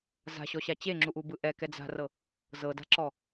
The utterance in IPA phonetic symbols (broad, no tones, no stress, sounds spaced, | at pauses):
z a̤ ɕ ɔ ɕ a t͡ɕ e ŋ͡ǁ u ʔ u b ɯ ʔ ɛ k ɛ d͡z a̤ r ɤ | z ɤ d a̤ ǁ ɔ